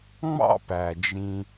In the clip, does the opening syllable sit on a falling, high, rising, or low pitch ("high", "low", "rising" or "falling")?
high